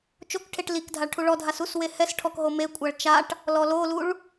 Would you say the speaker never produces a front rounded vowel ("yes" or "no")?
yes